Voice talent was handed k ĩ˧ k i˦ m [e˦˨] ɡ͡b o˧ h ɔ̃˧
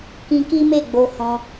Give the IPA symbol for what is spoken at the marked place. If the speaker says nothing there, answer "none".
e˦˨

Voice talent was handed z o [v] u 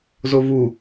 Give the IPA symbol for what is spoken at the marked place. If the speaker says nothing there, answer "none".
v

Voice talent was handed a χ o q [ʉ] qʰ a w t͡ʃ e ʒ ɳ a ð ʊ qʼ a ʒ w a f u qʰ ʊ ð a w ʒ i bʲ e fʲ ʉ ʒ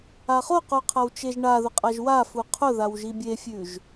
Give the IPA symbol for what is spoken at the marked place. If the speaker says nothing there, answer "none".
u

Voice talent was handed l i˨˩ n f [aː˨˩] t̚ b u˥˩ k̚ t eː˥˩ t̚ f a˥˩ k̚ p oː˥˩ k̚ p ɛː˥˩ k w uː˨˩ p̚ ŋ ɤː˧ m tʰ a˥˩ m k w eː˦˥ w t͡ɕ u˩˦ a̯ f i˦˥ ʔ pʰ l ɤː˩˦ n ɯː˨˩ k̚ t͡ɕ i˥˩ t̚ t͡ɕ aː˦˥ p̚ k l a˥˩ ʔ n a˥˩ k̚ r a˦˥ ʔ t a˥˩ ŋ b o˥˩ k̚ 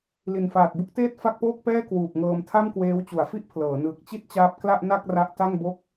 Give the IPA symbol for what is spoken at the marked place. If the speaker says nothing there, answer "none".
aː˨˩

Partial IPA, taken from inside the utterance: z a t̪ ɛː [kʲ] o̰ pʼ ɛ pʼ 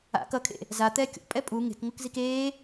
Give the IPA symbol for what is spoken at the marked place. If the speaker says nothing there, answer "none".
kʲ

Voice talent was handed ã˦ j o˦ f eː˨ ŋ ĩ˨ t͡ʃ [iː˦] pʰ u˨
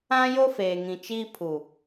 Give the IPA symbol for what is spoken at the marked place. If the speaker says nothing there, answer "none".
iː˦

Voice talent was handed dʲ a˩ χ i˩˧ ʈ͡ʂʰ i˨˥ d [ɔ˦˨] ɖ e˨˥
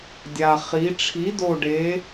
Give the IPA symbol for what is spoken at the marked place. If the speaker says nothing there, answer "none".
o˦˨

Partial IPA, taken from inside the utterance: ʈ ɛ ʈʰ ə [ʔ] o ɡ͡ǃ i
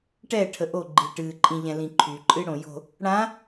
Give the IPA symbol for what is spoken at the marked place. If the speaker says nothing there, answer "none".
ʔ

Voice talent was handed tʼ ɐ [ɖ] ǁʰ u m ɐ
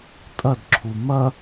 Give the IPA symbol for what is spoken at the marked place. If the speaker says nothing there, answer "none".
d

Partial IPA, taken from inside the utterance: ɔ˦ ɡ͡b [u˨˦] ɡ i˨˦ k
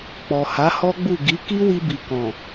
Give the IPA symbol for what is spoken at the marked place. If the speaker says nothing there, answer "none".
u˦˨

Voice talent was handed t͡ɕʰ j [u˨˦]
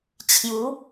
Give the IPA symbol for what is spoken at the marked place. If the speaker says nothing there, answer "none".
u˨˦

